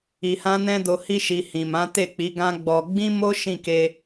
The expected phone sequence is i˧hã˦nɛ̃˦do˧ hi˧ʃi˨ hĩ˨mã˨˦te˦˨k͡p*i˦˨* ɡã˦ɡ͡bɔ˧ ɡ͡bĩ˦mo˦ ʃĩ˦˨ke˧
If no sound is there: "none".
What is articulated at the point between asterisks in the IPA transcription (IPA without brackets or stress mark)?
i˨˦